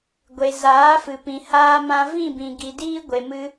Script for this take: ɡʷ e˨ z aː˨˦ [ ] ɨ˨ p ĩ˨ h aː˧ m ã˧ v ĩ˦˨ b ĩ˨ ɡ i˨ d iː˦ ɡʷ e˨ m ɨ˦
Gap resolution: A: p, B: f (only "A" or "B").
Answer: B